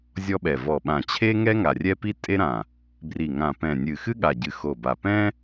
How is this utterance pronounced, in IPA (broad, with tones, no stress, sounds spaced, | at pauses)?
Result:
zʲ ɔ˥ ɓ ɛ˧˩ v ɔ˧˩ ɓ ã˧˩ t͡ɕʰ e˥ ŋ ɛ˥ ŋ a˧˩ rʲ ɛ˥ p i˥ tʼ e˥ ɾ ã˧˩ | b r i˧˩ ŋ ã˧˩ p ɛ̃˧˩ nʲ ɨ˧˩ x ɨ˥ ɠ a˧˩ ɟ ɨ˧˩ x o˧˩ b a˧˩ p ɛ̃˥